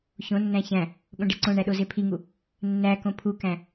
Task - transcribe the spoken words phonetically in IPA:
ç õ nː æ̃ ç æ̃ | ɠ õ ɖ e ǀ õ ɳ æ ɗ o z e pʰ i ŋ u | nː æ k õ pʰ u k æ̃

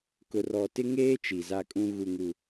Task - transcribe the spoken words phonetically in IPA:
k ʊ˨ r ɔ˨ t ɪ˦ ŋ eː˦ t͡ʃ i˨ z a˦ kʼ ũ˦ ɣ u˨ ŋ u˨

